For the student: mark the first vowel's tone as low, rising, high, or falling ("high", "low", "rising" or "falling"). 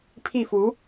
falling